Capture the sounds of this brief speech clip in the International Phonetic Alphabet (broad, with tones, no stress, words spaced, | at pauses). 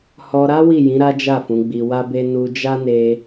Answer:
hɔ˧ɾa˦ wi˦˨jĩ˨˦ ɾa˦d͡ʒa˦˨fũ˨˦ ɡ͡bi˧wa˦be˦ nu˧d͡ʒa˦ne˧